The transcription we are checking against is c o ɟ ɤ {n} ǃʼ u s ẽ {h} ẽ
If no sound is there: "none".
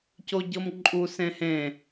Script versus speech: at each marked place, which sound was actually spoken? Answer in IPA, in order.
m, h

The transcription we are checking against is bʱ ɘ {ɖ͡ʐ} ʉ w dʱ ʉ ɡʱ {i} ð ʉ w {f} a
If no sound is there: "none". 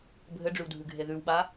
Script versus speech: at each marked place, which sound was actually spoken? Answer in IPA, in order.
ɖ͡ʐ, e, ɓ

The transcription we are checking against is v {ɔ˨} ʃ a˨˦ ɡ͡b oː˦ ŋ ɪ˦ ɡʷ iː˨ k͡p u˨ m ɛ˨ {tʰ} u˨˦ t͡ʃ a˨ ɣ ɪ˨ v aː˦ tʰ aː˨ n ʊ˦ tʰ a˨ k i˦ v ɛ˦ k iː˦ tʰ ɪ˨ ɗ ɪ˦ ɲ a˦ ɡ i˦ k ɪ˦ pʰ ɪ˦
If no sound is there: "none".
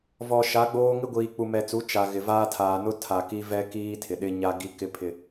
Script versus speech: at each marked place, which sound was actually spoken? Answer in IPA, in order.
ɔ˨, t͡s

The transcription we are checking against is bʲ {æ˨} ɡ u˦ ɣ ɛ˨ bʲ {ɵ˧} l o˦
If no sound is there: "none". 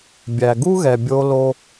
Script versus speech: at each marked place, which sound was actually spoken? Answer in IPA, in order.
æ˨, o˧

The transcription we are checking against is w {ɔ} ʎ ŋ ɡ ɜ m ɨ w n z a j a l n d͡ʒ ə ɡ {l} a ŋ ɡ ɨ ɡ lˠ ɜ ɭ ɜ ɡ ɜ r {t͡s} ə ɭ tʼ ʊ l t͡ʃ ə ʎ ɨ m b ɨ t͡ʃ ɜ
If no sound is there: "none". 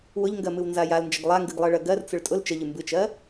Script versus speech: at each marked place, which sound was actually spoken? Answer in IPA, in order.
ʊ, lˠ, t͡s

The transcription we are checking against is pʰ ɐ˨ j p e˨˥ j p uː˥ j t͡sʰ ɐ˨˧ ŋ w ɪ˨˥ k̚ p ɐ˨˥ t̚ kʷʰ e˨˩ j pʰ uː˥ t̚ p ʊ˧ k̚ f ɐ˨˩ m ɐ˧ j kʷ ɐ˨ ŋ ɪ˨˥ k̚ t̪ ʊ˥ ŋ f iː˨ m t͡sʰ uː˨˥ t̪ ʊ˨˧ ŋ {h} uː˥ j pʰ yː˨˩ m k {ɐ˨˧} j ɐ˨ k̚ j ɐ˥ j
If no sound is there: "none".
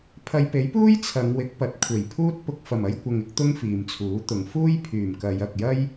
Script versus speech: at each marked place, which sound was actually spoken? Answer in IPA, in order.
f, ɐ˨˧

